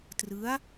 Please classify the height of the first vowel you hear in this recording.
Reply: high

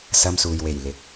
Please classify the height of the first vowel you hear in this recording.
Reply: low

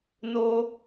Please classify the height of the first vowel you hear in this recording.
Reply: mid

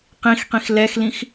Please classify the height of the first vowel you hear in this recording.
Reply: high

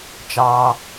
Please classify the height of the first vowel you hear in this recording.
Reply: low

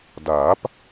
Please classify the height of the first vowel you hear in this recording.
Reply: low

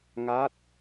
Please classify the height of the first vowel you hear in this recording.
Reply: low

